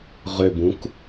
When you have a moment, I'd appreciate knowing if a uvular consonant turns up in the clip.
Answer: yes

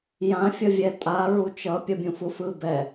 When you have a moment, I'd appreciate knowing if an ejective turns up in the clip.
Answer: yes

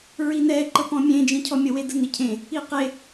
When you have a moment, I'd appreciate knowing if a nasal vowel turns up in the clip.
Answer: yes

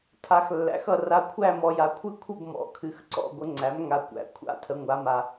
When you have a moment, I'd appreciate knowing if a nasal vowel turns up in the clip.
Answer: no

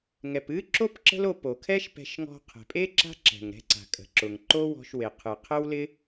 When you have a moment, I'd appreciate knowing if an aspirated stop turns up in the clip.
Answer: yes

